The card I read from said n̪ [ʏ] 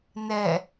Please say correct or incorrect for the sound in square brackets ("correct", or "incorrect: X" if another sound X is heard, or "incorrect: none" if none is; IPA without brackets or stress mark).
incorrect: ɛ